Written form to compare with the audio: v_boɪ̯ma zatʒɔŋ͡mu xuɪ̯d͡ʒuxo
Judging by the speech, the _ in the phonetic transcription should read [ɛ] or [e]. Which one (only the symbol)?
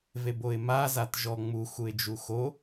e